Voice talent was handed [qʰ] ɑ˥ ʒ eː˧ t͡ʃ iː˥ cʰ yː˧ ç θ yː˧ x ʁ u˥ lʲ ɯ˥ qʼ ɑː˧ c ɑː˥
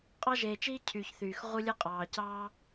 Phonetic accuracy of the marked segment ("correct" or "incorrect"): incorrect